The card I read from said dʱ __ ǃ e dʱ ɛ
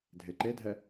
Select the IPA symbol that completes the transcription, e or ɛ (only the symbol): e